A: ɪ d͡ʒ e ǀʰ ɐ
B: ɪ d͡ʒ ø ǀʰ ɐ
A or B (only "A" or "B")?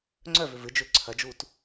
B